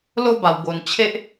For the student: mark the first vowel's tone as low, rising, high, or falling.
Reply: high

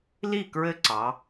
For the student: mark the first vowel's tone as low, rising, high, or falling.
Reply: falling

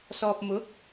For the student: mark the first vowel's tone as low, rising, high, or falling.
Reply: low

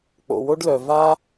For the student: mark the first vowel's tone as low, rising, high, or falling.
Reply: low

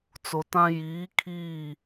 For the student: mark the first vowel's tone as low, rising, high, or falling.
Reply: low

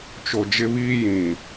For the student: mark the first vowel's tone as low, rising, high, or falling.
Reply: low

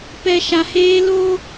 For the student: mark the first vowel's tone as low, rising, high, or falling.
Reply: low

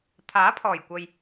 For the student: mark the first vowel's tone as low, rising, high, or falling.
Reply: rising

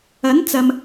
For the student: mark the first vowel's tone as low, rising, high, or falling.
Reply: rising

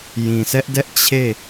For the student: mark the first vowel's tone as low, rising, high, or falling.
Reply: low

